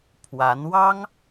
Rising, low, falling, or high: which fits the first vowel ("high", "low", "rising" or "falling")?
rising